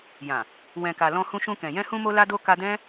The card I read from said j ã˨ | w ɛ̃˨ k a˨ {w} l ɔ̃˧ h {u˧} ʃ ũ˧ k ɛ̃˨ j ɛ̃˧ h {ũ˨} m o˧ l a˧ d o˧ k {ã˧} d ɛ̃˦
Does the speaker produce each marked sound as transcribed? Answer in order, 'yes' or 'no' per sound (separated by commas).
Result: no, no, no, no